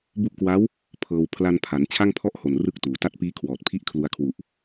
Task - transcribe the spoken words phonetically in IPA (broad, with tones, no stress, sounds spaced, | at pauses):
b u˦˥ ʔ k w a˦˥ w | pʰ ɤː˧ w pʰ l a˧ n pʰ a˩˦ n t͡ɕʰ a˥˩ ŋ pʰ ɔ˥˩ ʔ h o˨˩ n r ɯ˥˩ k̚ t uː˩˦ t a˦˥ t̚ p iː˦˥ kʰ w ɔː˨˩ t̚ pʰ i˥˩ ʔ kʰ l u˧ a̯ kʰ w u˨˩ ʔ